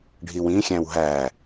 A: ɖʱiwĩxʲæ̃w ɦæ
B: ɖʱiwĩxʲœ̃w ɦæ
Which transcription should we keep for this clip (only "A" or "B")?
A